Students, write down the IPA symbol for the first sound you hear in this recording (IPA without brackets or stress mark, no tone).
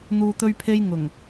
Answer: n̪